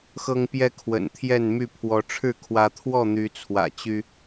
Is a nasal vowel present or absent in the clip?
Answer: absent